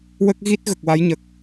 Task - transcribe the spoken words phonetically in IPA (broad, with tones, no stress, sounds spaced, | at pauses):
w ə˦˥ k̚ ɣ i˦˥ t̚ ɣ ə˨˩ k̚ w a˧˥ j ɲ ə˨˩ k̚